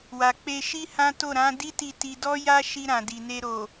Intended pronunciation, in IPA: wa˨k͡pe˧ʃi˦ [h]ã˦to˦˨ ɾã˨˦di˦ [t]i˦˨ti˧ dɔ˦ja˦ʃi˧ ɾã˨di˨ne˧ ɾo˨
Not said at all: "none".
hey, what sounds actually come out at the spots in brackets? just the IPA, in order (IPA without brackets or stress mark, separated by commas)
h, t